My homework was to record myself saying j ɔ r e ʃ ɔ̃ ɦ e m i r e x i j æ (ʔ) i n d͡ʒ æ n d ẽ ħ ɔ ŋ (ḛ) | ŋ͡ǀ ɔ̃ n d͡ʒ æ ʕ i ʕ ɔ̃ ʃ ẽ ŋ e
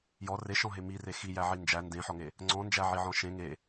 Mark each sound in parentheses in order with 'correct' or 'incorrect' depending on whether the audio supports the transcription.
incorrect: ʕ, incorrect: e

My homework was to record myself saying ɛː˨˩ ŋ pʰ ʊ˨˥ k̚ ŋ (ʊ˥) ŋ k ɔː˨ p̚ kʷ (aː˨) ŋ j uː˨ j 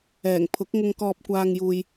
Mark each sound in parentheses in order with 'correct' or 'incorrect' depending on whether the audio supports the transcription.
incorrect: ʊ˧, correct

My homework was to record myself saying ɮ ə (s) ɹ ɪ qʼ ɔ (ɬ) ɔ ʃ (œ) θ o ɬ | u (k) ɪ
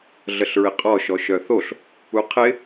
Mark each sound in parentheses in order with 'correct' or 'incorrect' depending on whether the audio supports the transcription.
incorrect: ɬ, incorrect: ʃ, correct, incorrect: qʰ

